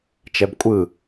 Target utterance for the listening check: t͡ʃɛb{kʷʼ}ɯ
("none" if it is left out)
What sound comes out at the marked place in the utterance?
kʷʼ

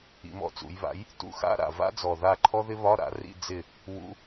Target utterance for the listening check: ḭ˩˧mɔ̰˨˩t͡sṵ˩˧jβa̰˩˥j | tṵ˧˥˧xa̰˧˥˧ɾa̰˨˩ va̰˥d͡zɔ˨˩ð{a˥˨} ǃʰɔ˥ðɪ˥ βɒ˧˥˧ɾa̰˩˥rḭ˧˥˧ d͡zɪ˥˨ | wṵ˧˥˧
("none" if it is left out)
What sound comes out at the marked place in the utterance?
a˥˨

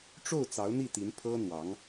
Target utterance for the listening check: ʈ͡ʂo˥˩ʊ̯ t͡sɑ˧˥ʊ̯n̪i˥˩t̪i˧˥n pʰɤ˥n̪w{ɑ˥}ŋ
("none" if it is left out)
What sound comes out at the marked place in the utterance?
ɑ˧˥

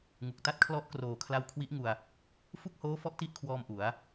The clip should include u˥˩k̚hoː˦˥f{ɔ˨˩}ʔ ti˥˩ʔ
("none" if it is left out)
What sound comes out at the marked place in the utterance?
ɔ˦˥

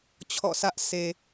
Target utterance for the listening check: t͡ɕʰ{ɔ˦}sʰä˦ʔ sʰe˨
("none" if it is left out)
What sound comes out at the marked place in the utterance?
ɔ̰˦˨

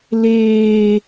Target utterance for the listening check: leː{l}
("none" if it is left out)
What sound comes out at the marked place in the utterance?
none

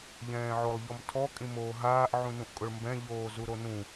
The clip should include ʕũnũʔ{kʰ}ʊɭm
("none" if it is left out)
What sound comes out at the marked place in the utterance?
kʼ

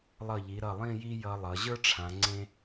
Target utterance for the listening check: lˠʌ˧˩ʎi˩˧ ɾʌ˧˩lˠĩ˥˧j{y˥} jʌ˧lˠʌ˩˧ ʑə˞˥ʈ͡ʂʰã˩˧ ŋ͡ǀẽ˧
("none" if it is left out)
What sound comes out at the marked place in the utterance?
i˥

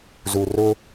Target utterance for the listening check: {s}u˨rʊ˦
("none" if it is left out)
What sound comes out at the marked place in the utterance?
z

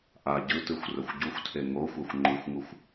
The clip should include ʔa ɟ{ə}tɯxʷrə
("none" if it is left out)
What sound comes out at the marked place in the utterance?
ɯ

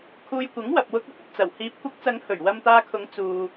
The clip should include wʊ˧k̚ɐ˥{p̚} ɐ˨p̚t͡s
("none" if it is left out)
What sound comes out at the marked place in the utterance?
p̚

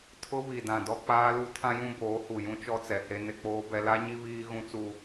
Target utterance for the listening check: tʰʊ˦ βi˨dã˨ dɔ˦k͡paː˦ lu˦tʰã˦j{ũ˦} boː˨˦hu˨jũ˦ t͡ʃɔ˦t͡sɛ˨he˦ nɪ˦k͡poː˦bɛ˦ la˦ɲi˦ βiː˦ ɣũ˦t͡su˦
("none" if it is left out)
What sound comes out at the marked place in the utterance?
ũ˦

